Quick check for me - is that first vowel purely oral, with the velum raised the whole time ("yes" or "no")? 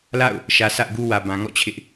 yes